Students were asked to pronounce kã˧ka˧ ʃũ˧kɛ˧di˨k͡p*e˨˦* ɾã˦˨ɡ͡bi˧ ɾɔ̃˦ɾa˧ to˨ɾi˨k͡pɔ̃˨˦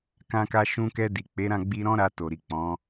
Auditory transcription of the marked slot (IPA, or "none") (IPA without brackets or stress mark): e˨˦